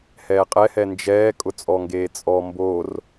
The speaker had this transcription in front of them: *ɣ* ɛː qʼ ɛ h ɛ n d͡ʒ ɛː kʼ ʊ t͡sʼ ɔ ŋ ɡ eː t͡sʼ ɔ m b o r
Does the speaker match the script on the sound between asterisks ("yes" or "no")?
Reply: no